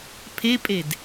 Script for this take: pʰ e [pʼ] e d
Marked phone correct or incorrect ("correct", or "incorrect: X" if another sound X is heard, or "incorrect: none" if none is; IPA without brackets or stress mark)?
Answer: correct